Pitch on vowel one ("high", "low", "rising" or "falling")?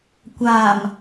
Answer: low